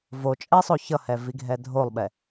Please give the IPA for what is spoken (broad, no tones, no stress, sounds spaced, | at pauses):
v o t͡ʃʼ ɛ sˤ o ç ʌ h ɛ v i ɡʱ ɛ dʱ o lˠ ɓ ɛ